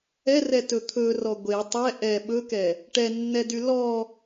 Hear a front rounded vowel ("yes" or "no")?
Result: yes